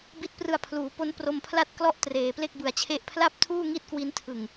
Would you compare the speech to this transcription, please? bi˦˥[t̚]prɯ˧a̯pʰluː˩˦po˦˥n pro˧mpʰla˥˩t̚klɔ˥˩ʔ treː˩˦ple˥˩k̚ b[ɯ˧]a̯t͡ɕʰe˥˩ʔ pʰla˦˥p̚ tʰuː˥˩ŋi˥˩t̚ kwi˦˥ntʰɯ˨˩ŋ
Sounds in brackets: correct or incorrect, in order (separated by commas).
correct, correct